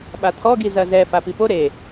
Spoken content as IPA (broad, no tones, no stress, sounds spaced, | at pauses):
ɓ a t̪ʰ ɔ ɡ i z ɐ z ɛ f a p i p o ɾ e